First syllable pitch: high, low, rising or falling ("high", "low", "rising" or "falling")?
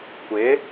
rising